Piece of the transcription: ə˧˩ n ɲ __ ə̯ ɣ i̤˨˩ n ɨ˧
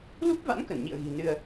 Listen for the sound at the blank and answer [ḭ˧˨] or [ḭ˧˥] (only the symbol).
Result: ḭ˧˨